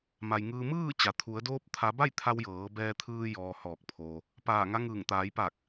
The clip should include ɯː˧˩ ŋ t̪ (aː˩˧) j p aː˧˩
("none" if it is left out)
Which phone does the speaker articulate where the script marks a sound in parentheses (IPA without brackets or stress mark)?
aː˩˧